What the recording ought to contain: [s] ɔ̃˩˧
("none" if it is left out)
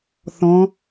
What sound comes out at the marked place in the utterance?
θ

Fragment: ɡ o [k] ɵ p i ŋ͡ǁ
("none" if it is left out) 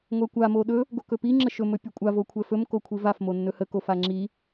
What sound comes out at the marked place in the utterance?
k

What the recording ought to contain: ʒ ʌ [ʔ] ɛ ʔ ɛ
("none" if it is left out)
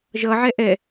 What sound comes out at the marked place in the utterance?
ʕ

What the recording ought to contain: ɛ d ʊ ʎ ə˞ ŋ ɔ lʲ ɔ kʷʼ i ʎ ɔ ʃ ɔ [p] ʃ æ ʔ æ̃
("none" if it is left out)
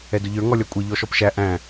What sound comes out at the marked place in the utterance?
p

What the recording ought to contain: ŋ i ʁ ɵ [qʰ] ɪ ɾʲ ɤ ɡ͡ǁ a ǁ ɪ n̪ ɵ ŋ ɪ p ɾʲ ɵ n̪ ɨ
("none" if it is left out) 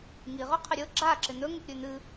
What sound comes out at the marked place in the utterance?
qʰ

